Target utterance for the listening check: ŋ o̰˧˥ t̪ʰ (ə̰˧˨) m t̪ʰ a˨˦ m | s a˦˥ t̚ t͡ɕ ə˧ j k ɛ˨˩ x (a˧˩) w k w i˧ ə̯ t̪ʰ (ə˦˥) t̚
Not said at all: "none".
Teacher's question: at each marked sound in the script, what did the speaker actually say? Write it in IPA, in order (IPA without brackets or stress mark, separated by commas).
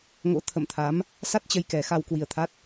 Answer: ə̰˧˨, a˧, a˦˥